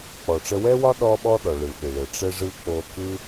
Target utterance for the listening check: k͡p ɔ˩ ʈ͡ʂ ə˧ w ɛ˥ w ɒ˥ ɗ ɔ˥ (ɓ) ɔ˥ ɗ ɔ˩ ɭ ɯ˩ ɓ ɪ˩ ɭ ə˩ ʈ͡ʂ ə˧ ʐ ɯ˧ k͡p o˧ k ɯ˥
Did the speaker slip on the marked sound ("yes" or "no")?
no